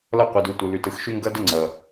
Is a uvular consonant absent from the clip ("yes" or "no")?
no